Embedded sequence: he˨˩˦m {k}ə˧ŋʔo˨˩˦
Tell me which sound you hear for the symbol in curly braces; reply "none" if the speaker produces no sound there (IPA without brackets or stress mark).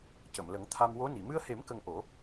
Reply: k